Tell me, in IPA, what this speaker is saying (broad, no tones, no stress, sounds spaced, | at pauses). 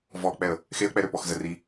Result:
v ɔ k͡p ɛ ə̯ | x e ə̯ k͡p ɛ ɾ ø p ɔ x z ə r i